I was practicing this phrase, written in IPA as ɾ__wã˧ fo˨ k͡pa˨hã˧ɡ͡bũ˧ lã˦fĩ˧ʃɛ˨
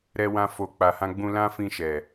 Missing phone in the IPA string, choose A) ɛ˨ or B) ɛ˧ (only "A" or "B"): B